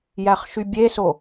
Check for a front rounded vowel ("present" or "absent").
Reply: present